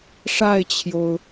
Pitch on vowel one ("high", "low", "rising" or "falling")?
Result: falling